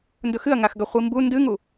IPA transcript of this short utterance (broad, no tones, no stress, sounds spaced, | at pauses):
n d ɵ x ɨ ɐ̯ ŋ a x ɡ ɐ χʷ i m b u n d ɨ ŋ u